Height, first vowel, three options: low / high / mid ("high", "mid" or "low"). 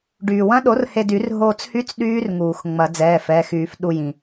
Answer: high